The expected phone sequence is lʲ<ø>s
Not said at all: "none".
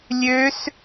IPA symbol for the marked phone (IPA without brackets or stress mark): ø